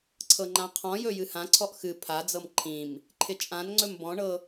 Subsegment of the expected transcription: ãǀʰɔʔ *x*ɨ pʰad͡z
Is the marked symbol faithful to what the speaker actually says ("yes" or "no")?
yes